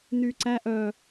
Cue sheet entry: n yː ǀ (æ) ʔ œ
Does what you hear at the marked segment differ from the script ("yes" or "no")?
no